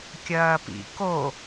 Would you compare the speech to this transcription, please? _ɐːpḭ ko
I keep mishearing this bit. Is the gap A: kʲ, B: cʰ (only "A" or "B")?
A